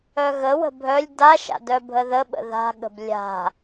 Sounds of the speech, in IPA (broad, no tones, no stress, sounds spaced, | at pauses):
œ ɣ ə w ə̤ bʱ œ lʲ d a ʃ a̰ d œ bʱ ə ð ə ɓ ə̰ ð a̤ ɠ ə̤ b lʲ a̤